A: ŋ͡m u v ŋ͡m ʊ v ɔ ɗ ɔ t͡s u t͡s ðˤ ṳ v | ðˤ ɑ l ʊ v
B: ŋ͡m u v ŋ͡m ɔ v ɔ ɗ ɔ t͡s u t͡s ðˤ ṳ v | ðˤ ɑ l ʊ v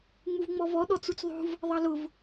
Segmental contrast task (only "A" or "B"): B